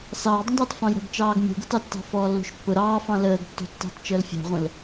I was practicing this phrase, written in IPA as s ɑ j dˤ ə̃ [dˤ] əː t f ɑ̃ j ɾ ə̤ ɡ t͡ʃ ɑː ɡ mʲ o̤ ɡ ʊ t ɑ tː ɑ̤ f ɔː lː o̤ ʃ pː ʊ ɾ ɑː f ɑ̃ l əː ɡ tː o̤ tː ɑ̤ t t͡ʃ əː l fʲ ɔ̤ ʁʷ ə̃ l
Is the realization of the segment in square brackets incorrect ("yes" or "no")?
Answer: no